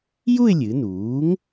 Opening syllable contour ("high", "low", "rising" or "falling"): falling